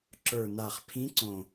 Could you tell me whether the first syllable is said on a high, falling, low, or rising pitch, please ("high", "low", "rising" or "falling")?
low